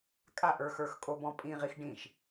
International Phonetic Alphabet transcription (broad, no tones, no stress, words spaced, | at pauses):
kʼaʔə˞xə˞xkʼo bɔ̃pʼĩ ʁixɖĩʃ